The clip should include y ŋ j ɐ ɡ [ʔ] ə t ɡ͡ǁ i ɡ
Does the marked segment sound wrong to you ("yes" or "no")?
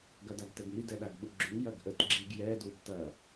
no